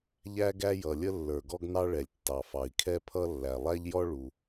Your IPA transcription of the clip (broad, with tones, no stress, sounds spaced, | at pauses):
ʎ æ˥ ɡ æ˥ j ʌ˩ lʲ ə˥ lː ə˞˩ ɡ ɔ˥ ɡ n ɑ˥ ɭ ɛ˩ lʲ tː ɑ˩ f ɑ˩ i̯ kʰ ɛ˥ pʰ ʌ˥ lː æ˩ lˠ æ˥ ʎ j ɔ˥ ɭ u˩